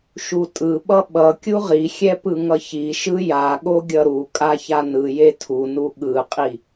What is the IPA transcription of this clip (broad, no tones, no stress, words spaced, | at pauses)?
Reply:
ʃutʼɯɓʌ ɓʌ kʲuʁixʲɛ pɯŋʌçiʃɯ jaɠo ɡʲʌɾukʼa çanɯje tʰunu ɠɯqʼi